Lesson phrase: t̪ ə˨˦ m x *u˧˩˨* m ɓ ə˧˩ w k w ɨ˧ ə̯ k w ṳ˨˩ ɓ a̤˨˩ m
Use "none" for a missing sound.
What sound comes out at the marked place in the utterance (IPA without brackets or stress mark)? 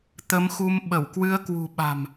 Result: u˧